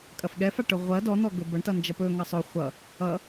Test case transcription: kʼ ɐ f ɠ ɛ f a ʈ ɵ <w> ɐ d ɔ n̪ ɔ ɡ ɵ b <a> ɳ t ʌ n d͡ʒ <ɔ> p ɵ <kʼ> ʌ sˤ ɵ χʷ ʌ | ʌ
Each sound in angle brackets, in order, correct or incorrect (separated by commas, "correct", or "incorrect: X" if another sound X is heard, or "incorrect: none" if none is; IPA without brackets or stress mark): incorrect: ʁʷ, incorrect: ʌ, incorrect: ʌ, incorrect: ŋ